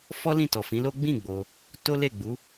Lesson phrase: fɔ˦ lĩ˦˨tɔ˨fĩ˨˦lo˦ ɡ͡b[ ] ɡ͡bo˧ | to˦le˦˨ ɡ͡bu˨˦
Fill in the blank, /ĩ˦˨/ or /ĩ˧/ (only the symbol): ĩ˦˨